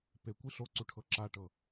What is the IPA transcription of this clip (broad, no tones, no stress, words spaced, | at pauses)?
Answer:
pekʷi ɬoǀuʈʰɤ ǁaʈɤ